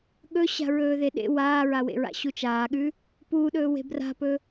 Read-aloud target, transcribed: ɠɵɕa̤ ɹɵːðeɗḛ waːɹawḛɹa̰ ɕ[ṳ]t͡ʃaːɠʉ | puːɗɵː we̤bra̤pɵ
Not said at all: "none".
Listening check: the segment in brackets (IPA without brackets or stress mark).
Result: u